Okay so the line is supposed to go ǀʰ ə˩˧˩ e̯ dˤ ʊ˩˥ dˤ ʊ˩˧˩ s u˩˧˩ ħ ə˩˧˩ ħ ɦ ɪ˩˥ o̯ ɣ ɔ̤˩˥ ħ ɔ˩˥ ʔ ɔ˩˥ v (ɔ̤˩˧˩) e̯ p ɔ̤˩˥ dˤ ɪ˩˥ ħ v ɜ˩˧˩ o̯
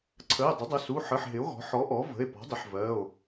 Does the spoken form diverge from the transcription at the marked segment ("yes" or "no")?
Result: yes